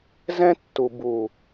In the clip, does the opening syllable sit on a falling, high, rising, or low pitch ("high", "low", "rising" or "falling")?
high